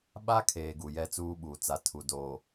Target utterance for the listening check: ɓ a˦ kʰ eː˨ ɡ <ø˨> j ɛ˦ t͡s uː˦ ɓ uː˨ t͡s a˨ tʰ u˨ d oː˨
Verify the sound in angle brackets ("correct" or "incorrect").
incorrect